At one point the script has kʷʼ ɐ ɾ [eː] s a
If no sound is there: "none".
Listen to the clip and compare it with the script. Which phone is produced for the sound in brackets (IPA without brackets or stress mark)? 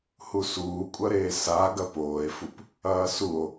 eː